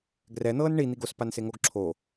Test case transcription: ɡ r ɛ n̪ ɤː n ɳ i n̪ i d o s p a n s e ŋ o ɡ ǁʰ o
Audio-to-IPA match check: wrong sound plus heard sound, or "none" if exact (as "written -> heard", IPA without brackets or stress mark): d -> ɡ